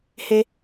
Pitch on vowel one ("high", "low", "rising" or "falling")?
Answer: high